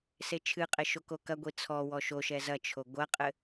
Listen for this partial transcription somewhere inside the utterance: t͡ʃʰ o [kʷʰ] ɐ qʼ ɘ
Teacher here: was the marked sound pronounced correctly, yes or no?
no